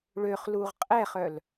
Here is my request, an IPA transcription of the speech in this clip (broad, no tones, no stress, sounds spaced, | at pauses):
ɭ ø χ l u ʁ qʼ ɛ χ œ l